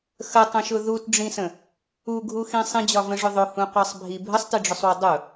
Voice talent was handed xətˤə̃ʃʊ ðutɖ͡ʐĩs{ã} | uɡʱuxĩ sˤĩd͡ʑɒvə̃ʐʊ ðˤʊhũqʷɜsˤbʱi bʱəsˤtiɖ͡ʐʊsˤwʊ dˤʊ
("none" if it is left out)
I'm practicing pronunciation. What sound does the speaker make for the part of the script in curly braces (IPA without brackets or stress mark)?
ə̃